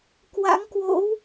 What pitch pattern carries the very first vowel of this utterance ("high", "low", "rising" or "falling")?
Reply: rising